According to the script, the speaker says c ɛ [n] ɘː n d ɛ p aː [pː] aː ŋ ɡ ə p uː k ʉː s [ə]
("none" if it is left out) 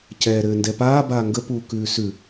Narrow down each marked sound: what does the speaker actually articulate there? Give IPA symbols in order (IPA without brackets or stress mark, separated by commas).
ɾ, b, ʉ